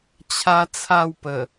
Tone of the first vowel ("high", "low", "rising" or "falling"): high